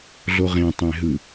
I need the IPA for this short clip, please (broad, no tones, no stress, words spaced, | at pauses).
ɮoʁẽ tˤẽɦɯ